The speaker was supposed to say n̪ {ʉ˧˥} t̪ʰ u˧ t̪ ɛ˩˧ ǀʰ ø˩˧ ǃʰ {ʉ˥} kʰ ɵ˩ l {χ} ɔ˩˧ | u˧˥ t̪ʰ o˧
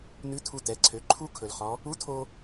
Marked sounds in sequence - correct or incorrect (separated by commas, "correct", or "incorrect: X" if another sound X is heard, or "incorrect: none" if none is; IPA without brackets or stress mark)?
correct, incorrect: u˥, correct